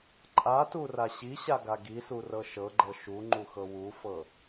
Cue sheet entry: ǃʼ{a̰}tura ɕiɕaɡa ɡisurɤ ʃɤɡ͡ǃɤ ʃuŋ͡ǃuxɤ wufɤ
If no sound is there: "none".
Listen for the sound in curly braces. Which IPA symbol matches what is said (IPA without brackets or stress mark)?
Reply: a